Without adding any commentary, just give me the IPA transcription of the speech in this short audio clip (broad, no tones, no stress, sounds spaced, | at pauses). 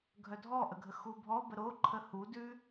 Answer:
ɡʱ œ dʱ ɔ ʔ ə ɡʱ ə x u bʱ ɔ b ə ɾ o ǃʰ ə h u d ʉ